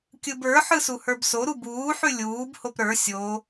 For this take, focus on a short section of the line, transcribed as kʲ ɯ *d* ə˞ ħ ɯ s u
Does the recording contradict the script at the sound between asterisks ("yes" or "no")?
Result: yes